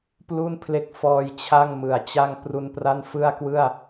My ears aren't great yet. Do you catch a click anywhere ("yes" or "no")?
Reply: no